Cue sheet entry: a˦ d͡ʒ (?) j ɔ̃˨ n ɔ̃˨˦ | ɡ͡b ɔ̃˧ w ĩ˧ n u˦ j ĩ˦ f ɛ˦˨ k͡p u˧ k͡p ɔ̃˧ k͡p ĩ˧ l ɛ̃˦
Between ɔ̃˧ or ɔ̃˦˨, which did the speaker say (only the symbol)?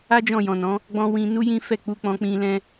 ɔ̃˦˨